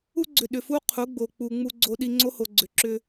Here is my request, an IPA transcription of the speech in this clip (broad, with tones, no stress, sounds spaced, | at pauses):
u˦ ɡ͡ǀ ʏ˨ ɗ ʏ˨ f u˦ qʰ u˨˦ ɡ͡b o˨ k͡p u˨ ŋ͡m u˧ ɡ͡ǀ o˧ ɗ i˧ ŋ͡ǀ o˦ h o˨ ɡ͡ǀ ʏ˨ ǁ ʏ˧